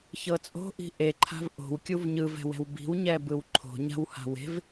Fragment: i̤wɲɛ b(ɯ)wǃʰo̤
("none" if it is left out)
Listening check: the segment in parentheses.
ɯ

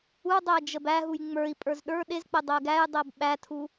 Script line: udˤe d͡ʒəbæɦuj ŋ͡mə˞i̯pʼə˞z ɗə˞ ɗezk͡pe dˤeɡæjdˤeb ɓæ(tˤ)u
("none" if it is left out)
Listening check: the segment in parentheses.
tʰ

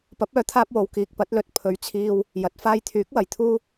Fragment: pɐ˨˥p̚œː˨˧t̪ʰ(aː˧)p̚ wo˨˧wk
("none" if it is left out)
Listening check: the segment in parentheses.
aː˧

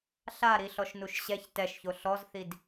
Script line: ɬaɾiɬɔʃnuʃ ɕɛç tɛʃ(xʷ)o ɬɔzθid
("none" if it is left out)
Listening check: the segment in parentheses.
ç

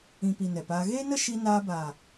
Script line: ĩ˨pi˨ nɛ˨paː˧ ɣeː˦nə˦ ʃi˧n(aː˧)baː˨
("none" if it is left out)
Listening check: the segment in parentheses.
aː˧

